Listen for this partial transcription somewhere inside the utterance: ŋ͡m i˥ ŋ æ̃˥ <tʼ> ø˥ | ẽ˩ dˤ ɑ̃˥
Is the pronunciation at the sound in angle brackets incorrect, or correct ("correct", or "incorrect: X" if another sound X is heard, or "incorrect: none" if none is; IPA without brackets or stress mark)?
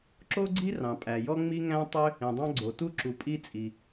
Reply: incorrect: tˤ